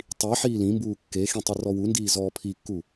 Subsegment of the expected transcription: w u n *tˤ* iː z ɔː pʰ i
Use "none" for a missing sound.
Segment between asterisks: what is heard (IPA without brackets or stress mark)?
d